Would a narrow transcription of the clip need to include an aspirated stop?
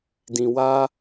no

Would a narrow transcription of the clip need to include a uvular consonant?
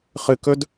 yes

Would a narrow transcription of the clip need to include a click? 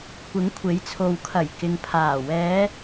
no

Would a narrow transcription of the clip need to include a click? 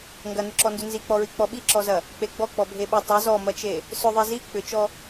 yes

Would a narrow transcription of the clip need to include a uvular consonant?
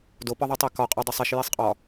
yes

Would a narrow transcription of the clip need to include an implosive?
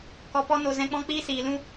no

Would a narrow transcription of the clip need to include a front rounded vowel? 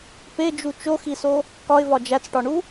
no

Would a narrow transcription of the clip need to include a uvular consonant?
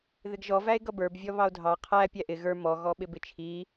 yes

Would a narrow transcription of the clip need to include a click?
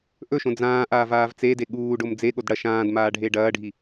no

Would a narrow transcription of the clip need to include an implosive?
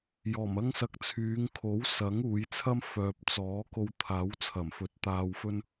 no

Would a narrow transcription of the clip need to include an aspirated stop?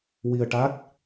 no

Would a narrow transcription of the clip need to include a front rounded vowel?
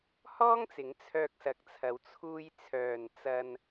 yes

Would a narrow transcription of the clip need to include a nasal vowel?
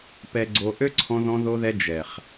yes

